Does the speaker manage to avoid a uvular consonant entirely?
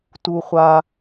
no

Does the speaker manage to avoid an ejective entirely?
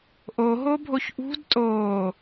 no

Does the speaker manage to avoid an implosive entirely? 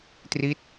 yes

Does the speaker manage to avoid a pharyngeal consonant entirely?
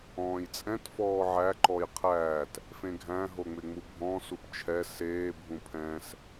no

